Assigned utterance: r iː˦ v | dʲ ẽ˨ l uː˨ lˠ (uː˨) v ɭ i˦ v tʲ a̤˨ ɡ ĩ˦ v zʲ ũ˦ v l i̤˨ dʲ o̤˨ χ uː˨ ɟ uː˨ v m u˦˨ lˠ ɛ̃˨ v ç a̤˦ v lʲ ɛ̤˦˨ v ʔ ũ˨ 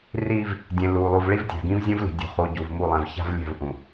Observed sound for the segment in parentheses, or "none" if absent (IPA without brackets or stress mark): u˨